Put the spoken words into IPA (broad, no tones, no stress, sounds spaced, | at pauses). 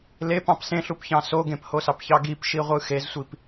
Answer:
l e p ɑ̃ p s ẽ ɬ u p ç ɑ̃ s o ɡ ẽ p h o s ɑ p ç ɑ ɡ i p ʃ i ʁʷ ɯ x e z sʷ i p